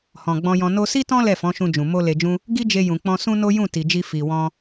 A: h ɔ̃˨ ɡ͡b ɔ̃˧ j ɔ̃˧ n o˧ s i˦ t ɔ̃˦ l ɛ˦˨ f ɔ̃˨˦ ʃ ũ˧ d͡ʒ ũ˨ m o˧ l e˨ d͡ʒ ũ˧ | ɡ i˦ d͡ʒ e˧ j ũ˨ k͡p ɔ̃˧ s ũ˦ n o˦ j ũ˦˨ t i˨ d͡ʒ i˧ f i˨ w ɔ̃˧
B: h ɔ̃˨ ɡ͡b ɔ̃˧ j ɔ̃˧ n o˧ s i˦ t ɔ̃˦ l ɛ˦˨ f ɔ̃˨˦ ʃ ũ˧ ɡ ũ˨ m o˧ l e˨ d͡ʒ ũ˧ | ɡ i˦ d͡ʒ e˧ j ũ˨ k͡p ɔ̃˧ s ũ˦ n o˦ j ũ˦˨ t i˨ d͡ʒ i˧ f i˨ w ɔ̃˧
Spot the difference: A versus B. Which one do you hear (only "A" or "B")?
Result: A